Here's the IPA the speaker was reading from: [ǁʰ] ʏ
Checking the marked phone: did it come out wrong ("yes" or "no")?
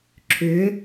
no